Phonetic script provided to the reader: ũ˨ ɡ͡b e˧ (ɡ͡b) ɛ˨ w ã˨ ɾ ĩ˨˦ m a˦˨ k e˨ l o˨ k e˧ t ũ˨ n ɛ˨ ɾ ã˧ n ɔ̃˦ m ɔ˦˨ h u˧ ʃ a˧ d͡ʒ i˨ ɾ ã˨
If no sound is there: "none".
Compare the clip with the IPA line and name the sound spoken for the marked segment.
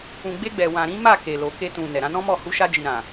ɡ͡b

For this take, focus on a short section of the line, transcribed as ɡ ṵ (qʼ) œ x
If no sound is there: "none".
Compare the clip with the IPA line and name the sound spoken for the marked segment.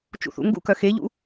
k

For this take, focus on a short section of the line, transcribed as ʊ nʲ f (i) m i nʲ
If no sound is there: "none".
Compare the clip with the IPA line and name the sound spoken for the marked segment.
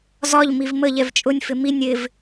ɪ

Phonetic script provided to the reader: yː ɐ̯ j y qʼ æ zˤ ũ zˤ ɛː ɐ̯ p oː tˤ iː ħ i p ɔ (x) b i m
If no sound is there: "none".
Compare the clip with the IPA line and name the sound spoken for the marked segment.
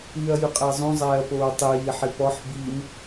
ħ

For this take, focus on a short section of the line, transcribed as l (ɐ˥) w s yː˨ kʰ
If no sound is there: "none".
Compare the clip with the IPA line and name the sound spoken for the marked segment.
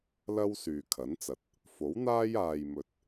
ɐ˥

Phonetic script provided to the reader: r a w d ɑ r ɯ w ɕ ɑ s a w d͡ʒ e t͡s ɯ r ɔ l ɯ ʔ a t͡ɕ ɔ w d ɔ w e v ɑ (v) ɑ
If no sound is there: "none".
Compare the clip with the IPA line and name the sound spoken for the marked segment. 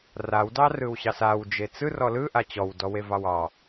w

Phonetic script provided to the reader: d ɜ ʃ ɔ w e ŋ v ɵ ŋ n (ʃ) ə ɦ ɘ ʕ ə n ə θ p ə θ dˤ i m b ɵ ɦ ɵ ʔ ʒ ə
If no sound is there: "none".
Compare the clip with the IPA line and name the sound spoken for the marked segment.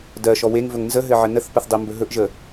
z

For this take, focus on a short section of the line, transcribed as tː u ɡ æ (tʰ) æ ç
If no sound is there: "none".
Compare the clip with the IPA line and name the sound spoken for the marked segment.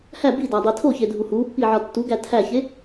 tʰ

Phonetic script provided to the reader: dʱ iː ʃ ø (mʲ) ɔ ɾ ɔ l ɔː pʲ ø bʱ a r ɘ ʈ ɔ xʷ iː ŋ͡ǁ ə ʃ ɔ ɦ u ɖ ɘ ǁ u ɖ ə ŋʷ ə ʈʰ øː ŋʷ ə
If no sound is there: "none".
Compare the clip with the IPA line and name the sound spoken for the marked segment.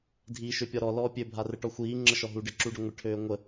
pʲ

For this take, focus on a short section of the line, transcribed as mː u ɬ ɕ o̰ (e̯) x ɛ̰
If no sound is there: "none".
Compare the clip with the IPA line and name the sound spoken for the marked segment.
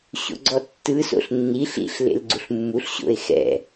e̯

